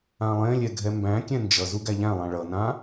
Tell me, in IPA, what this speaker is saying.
ã lˠ ẽ lʲ ɛ ɡʱ ɛ m b æ̃ kʲ ɛ̃ n d͡ʒ ʌ z u ɡ æ ʎ æ̃ lˠ ã ɭ ʌ n ã

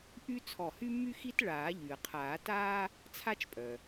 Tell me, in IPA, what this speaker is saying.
ʔ y˥ t͡sʰ ɔ˧˩ h y˥ mː y˥ x i˥ t ɭ aː˨˩˦ ʎ y˩ ə̯ qʰ aː˨˩˦ t aː˥ | t͡sʰ a˥ t͡ʃ pʼ œ˩

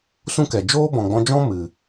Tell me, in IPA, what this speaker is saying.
s ũ˦ k ɛ˨ d͡ʒ oː˦ b ɔ̃˨ ɡ͡b ɔ̃˧ d͡ʒ ɔ̃˦ m ɨ˨

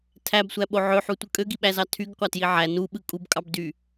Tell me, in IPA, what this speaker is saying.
tʰ æ b sʷ æ ɓ o ʕ ø ħ u tʷ ɯ kʼ ø ɡ i ɓ æ z ɑ tʰ y ɡ qʷ ɑ t j i ʕ æ n u ɓ ɯ kʼ u b kʼ ɑ b d y

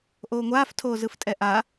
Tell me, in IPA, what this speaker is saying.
ʔ oː ŋʷ aː f tʰ oː z ɯ f tʼ ɛ ʔ a

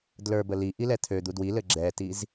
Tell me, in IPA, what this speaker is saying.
d l ə˞ b ə l i ʔ i l ɛ t̪ʰ ø d̪ u d w i l ɘ ɡ͡ǁ ɛ t i z

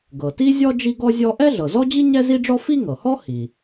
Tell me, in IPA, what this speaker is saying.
ɡ ɤ˩ t i˥ zʲ ɔ˥ d͡ʒ i˥ ɡ ɔ˥ zʲ ɔ˥ ʔ ɛ˥ ɮ ɤ˩ z ɔ˥ d͡ʑ i˥ ɲ ɛ˥ z i˥ ɖ͡ʐ ɔ˥ f i˥ ŋ ɤ˩ h ɔ˥ h i˩

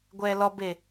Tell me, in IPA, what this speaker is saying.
ɡʷ ɛː l ɔ b e

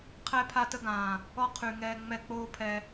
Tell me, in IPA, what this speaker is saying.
qʰ ɛ˦ pʰ a˦ t ə˦ ɡ ãː˨ | ɔ˦ qʰ y˨ ŋ ɛː˦ ŋ͡m ɛ˦ k͡p oː˦ pʰ ɛ˨

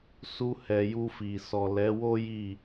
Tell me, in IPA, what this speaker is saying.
s u˧ h ɛ˨ j u˧ f i˨ s ɔ˨ l ɛ˨˦ w o˦ j i˦˨

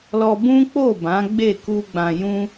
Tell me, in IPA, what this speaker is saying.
l ɔ˧ b ũ˦ k͡p o˦˨ b ã˨˦ ɡ͡b e˦˨ k u˧ ɡ͡b ã˨ j ũ˧

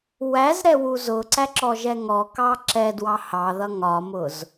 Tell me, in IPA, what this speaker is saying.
w æ z ɾ ɛ w u z ʊ ǀ æ ǁ ɔ ʒ ɛ ŋ ɔ k ɑ ǁ ɛ d w ɑ h ɑ ð ʌ ŋ ɒ m ʊ z

